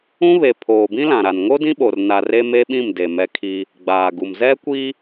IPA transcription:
ũ˦βe˨ pʰoː˨bĩ˦lã˨ɾa˨n ŋo˦dĩ˦ɓo˨r na˨re˦me˦ɓĩ˦˨m de˨ mɛ˦kʰi˦ | ɡ͡baː˨ɡu˨m zɛ˦kʷi˦

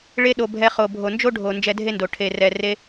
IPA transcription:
ɭe˧ɗo˨ bʱɛ˧χo˨ bʱo˨nd͡ʒo˦ ɖʱo˨ nd͡ʒɛ˧dʱe˦ndo˨ ʈʰe˨rɛ˨ re˧

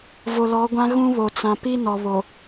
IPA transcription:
vo˨lɔ˨˦ɡʷã˦ ɣũ˦βo˨ t͡sã˨ pi˦nɔ˨ βo˨

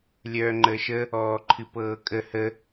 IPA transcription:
lʲœːŋ͡ǃəːʃə | ɔːǃʰɨpɤːkʼə hə

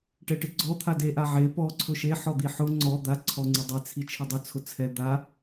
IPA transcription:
ʈɛʈɪɡ͡ǀɔ t̪ʰade ʔaʕe pɔ ǀʰʊʃe ħɔd̪iħʊ ŋ͡ǀɔ d̪a ǀʰɔŋ͡ǀɪdˤe t͡sʰit͡ʃʰɪdˤʊ t͡sʰʊt͡sʰɛ d̪a

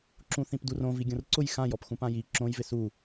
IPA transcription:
ǁũθĩpdurõ viɡʲõrǀʊj xãjɔpxũpã ji ǁõjvɪ su

